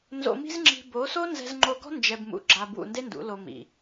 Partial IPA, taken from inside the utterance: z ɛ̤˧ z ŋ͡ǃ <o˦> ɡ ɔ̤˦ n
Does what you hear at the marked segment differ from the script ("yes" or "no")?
yes